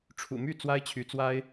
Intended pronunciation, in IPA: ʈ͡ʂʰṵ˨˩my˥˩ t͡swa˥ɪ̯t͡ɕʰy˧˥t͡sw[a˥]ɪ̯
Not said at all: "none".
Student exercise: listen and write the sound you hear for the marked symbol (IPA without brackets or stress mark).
a˥